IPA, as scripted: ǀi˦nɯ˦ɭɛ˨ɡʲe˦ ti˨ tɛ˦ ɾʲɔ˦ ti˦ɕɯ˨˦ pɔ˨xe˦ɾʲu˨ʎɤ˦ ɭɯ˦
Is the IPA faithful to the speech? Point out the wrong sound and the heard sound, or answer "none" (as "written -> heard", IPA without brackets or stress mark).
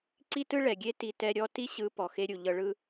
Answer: n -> t